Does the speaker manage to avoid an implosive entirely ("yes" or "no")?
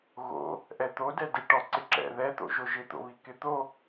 yes